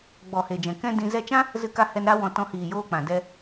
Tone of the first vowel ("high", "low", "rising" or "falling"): low